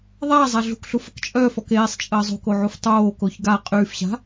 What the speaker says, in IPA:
ðˤ aː zˤ a ɮ ṳ k ɬ u f ə k t͡ʃʼ œː f ɔ k eː sˤ t͡ʃʼ əː zˤ o̤ k o ʕ u f tˤ oː k o ç ɡ a qʼ yː f ɕ a̤

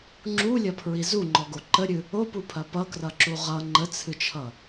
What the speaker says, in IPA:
ŋ͡ǁ u lʲ ɐ pʰ ɹ i z u ŋ͡ǃ ɔ ɡ o ǃ ə ɾʲ ɨ | o p u pʰ ɐ p ʌ k r ʌ ǁ u ʁ ʌ ŋ͡ǃ ə t͡sʰ ɨ t͡ʃʰ ʌ

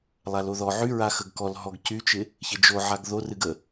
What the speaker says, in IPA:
lˠ a l o ð ɔ ʕ y ɹ a x ə ɡ k ɔ l ɦ ɔ ɡ c y t͡ʃ ɪ | ç ɪ d͡ʒ o ʕ a ɡ ð o r ɨ ɡ ə

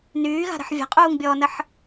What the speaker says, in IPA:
n yː ɣ a̤ ɾ ə̤ ħ vʲ a̤ qʼ uː ŋ bʲ ɔː n ə ħ

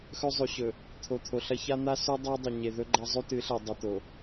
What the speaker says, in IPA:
x ɵ˦ zˤ ʉ˨ ɕ ɵ˨ | t̪ʰ o˨ t̪ʰ o˨ ɬ ɐ˦ ç a˦ n̪ a˦ s ʉ˦ dˤ ɵ˦ dˤ ɐ˨ ɲ e˨ ð ɵ˦ ɡ͡ǃ a˦ zˤ ʉ˦ t ɨ˨˦ ɬ e˨ dˤ i˨ t̪ o˨

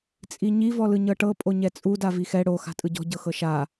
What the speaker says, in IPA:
t͡sʼ i ɲ i v ɔ l ɯ ɲ ɤ ʈ ɤ pʼ o ɲ ɛ t͡sʼ u d a v i x ɛ ɽ o x a̤ tʼ ɯ ɟ ɔ̤ ɟ ɤ x ɤ ʃ a

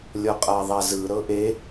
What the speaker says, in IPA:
lʲ ɔ qʼ a ðˤ a z ɯ ɾ ɤ ʔ e

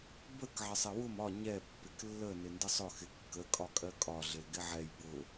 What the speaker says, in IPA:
b ə k ʕ ɪ sˤ ɪ w ʊ m ɒ ɲ ɛ pː ɪ k lː ə n ɪ n d ɪ sˤ ʊ x ɪ kː ə kʼ ɒ kʼ ɜ kʼ ɒ ɮ ɪ l ɡ ɪ ʕ ɛ j b ʊ

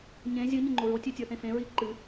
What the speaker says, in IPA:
ɲ ẽ zʲ ɨ ɲ ɪ ŋ͡ǃ o ɹ o tʲ ʉ tʲ ə˞ θ ẽ f ẽ ɹ i ǃ ɨ

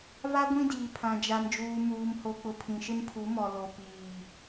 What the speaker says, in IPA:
v a˦ ɡʷ ĩ˦ d iː˨ pʰ ã˨ d͡ʒ a˨ m d͡ʒ uː˨ m uː˨ m h o˨ k͡p ʊ˨ pʰ ĩ˨ ʃ ɪ˦ m pʰ u˨˦ m ɔ˨ l o˨ p iː˨

